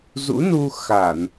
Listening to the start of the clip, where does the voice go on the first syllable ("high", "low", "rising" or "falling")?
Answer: rising